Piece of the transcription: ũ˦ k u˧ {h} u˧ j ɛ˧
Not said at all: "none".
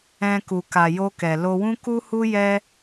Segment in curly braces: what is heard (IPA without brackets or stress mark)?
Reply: h